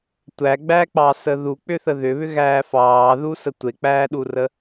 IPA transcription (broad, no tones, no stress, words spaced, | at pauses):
tʷæɡ͡bæk͡pɑsə ðuk͡pʏθə ðʏβʏɣæː fɑːðusə tʷek͡pæːɗurə